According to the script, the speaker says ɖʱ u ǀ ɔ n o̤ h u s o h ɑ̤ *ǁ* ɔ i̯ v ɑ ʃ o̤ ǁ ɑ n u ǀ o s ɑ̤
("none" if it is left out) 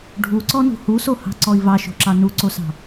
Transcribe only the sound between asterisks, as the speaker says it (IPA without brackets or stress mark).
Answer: ǀ